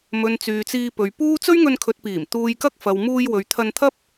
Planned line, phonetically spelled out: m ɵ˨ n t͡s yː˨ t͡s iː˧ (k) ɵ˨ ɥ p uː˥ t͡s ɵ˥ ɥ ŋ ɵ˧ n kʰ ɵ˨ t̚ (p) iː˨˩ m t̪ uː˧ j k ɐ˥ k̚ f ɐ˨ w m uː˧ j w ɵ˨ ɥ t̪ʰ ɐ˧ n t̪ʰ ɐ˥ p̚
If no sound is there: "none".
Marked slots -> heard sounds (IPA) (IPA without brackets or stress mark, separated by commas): p, p